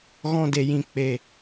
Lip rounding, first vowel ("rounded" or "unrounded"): rounded